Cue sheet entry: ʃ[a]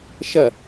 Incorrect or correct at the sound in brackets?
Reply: incorrect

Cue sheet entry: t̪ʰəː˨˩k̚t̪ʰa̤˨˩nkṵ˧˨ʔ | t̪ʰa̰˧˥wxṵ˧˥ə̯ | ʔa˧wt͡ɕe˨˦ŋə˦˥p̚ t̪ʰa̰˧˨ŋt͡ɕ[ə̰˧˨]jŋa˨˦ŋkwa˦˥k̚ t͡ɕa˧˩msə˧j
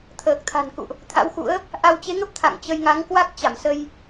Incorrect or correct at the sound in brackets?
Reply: incorrect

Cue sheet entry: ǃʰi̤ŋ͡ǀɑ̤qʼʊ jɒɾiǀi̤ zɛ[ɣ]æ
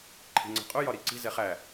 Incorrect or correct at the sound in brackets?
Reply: incorrect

